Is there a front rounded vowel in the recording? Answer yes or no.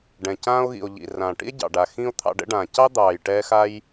no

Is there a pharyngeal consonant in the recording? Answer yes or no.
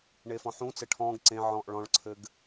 yes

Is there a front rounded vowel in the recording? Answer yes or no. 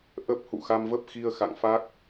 no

